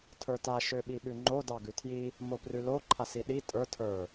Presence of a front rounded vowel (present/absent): present